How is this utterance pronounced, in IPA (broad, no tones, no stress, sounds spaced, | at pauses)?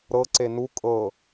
ɾ ɤ ǀ e n u kʼ ɤ